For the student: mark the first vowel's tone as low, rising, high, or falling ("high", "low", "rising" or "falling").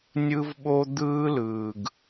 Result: high